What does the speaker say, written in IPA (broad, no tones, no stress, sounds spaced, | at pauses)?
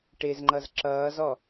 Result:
ʈ ɪ z ŋ͡ǃ ʌ z ǁ ʌː z ɔ